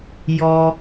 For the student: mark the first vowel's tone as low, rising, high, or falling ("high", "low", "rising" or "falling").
high